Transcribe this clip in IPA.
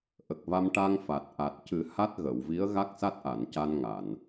ʔ ə˨˩ k̚ v a˧ m ʈ a˧ ŋ f a˨˩ t̚ ʔ a˨˩ t̚ c ɨ˨˩˦ h a˦˥ t̚ ɣ ə˨˩˨ w v i˧˥ ə̯ ɣ a˦˥ k̚ s a˦˥ t̚ ʔ a˨˩˨ n c a˧ n ŋ a˨˩˨ n

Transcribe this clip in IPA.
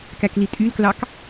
k æ k l i tʼ y l k l ɑ k

